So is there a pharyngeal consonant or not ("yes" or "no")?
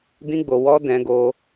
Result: no